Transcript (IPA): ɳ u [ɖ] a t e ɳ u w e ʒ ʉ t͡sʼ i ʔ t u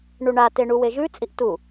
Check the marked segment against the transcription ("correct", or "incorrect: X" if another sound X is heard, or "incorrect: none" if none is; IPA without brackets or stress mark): incorrect: ɳ